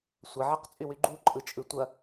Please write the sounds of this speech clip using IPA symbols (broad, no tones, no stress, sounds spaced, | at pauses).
sʷ ɐ ʕ ɐ q t͡sʼ y w y ɡ͡ǃ u ǃʼ ɯ t͡ʃʼ ɯ tʷ ɐ